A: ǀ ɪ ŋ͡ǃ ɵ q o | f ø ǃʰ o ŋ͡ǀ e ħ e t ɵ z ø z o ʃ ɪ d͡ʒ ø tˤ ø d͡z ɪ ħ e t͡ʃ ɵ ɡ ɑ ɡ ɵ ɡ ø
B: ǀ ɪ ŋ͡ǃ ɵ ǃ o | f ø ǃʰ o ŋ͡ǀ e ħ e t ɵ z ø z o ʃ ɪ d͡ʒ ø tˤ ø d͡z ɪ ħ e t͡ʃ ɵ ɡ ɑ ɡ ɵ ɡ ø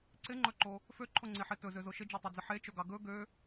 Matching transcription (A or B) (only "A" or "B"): B